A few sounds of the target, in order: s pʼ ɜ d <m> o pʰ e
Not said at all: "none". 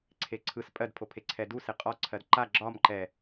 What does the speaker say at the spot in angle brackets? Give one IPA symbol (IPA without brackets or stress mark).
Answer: pʰ